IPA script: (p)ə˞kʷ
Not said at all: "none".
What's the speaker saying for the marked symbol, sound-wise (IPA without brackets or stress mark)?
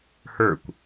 h